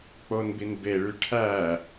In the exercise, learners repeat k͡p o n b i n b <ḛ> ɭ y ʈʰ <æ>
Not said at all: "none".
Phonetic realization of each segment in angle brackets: e, æ

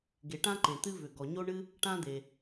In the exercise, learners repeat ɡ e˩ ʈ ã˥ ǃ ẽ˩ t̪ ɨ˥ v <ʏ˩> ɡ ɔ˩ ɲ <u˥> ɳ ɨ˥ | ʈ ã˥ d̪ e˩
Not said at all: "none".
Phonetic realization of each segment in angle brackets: ʏ˩, o˥

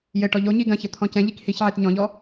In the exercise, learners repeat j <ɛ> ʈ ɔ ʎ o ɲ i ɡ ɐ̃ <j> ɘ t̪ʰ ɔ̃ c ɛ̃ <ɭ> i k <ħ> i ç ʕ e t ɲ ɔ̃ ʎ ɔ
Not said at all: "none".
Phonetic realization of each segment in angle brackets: ɘ, ç, ʎ, h

